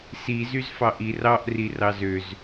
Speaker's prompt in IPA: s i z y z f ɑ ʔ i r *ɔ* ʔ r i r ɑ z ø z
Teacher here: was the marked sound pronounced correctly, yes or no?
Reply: no